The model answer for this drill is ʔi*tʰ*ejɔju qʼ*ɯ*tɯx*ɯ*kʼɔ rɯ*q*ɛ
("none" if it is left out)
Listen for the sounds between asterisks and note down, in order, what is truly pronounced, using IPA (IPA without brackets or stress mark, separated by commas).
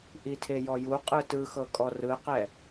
tʰ, ɯ, ɤ, q